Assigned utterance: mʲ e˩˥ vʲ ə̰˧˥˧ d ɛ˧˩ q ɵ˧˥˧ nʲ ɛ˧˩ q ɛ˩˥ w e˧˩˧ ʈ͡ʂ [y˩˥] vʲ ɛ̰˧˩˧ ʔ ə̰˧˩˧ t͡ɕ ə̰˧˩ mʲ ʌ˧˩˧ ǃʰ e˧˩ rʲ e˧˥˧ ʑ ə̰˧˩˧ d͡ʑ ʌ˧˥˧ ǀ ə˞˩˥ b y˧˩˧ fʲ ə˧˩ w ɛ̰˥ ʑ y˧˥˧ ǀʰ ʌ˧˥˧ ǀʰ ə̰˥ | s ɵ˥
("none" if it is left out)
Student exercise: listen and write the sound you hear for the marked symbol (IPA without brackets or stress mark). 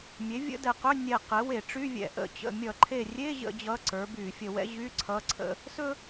y˧˥˧